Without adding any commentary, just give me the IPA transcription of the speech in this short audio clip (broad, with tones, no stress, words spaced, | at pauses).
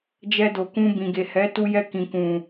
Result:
d͡ʒɛ˧do˨kũ˧ bĩ˨ɡe˨hɛ˨˦ tu˧jɛ˧kĩ˨kũ˨